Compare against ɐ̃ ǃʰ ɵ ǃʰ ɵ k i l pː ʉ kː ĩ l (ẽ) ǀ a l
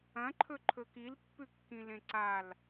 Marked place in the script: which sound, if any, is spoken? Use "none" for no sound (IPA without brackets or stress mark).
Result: ẽ